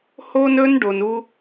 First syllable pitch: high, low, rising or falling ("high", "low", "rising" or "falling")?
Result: high